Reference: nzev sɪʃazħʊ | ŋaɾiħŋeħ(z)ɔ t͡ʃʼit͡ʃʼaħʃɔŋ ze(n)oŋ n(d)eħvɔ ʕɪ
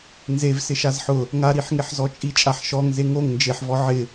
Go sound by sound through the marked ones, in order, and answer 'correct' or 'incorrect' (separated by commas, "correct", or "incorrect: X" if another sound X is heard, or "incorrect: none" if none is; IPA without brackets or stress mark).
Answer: correct, incorrect: ŋ, incorrect: d͡ʒ